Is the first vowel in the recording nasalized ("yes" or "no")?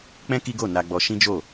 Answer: yes